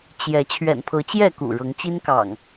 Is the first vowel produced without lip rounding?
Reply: yes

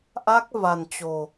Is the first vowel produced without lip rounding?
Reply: yes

